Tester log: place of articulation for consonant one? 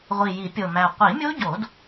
uvular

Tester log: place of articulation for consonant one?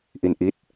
glottal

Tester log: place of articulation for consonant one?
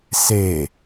alveolar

